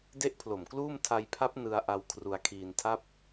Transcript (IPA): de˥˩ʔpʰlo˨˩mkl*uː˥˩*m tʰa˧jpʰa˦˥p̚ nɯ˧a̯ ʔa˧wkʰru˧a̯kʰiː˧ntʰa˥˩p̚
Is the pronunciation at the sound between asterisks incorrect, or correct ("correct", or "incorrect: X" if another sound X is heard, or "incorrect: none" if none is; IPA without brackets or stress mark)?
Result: correct